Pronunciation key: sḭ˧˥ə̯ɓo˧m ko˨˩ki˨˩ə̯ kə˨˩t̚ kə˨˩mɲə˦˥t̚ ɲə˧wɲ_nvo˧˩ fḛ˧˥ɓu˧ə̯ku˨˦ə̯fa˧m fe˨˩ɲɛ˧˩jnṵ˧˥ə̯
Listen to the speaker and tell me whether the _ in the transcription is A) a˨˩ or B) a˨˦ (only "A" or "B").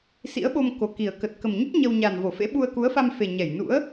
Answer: A